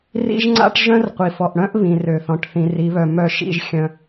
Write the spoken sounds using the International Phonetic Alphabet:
r ḭ˦ ʒ ŋ͡ǀ a̰˦ ʈ ʒ œ̃˦ r qʷ i˨ f ɔ˨ ʔ ɽ œ̃˦ ʔ β ĩ˨ r ø˨ θ ɔ̃˨ ʈ θ ĩ˨ r i˨˦ β œ˨ m œ˦˨ ʃ ḭ˦ ʒ xʲ œ̃˦

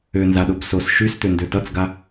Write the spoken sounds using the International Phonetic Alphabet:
ø n z a ɗ o b s o s ʃ y s t̪ ø n d ø t ʌ t͡s ɡ a

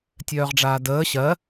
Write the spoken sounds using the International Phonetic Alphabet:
tʲ œː ʁ ɖ͡ʐ aː d əː ɕ ɜ

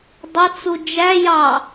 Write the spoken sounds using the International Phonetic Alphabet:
dˤ ʌ t͡s u d͡ʒ æ j ɑ

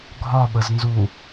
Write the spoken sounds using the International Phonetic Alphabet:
ɡʱ ɒ ɓ ə z n z u

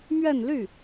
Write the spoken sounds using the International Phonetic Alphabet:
m ɥ ɛ˥˧ n l y˥˩

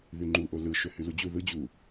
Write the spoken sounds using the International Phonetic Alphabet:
ð y ŋ͡ǃ u ʔ o l ɯ ʃ ø h y l u d͡ʑ u ð ɯ d͡ʑ u

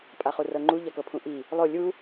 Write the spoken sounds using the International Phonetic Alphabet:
pʼ a χ u r ɤ ŋ͡ǃ u ʎ a k ɤ pʰ ũ ʔ i | lˠ o lʲ u

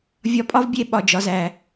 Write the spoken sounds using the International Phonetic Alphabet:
vʲ ɒ˧ pʼ ɒ˦ v bʲ e˧ ɓ ɒ˨ d͡ʒ ɒ˨ z æ˨

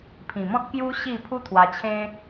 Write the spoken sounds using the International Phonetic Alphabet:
pʰ ĩ˨˩ m ɔ̃˦ t̚ k j u˦ ɕ i˥˧ pʰ u˦ t̪ʰ w a˧ t͡ɕʰ ẽ˦

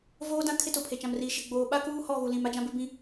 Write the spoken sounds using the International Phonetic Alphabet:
v oː˦ d ã˦ kʰ ɪ˦ t ʊ˨ pʰ e˨ t͡ʃ ã˨ m r iː˨ ʃ ɪ˨ ɡ͡b oː˨ ɓ a˦ k uː˦ h ɔ˦˨ ɣ u˨ l ĩ˨ m a˦ d͡ʒ ã˦ b ɪ˦ b ĩ˦

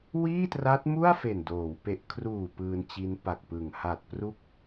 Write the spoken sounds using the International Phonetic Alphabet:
w iː˥˩ t r a˦˥ t̚ m u˥˩ a̯ f e˨˩ n d oː˩˦ w p e˨˩ ʔ kʰ r uː˨˩ p ɯː˧ n t͡ɕ i˦˥ n p a˨˩ k̚ p ɯ˨˩ ŋ h a˨˩ t̚ p r u˦˥ k̚

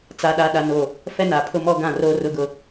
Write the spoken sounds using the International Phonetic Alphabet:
t͡s a˦ ɗ a˦ ɗ a˦ n o˦˨ | f ɛ˦ n a˨ pʰ ʊ˦ m ɔ˦ ɡ ã˦˨ r o˦ r ʊ˦ ɡ ʊ˦˨

